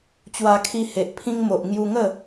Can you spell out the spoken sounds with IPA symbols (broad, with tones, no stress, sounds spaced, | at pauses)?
t͡ɕ w a˧ kʰ i˧ h e˨ ʔ pʰ ĩ˧ ŋ m o˨ ʔ ŋ j u˧ ŋ ə˥˧